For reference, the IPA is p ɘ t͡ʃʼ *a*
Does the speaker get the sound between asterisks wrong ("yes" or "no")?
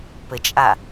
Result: no